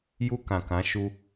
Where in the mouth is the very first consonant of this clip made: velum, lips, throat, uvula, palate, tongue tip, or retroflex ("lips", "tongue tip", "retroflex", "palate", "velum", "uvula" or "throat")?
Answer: palate